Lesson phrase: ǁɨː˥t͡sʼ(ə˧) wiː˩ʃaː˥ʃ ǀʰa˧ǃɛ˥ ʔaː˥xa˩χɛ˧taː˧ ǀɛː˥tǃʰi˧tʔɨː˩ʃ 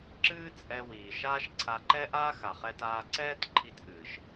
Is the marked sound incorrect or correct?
incorrect: ɛ˧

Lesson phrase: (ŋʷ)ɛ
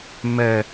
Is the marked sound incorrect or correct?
incorrect: m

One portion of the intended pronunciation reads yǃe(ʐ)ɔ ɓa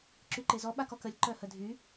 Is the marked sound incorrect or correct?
incorrect: z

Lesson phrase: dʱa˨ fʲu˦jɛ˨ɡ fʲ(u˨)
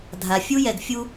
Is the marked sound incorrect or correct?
incorrect: u˦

